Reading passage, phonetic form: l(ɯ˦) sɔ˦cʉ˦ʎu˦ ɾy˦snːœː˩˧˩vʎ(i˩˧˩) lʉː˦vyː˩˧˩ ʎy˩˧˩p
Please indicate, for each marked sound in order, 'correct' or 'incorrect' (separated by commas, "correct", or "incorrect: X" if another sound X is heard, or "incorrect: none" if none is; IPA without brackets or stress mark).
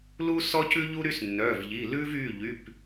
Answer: incorrect: u˦, correct